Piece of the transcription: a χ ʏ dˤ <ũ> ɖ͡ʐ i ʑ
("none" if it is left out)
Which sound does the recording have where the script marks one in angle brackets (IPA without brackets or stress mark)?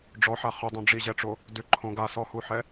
õ